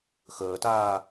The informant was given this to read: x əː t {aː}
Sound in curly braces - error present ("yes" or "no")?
no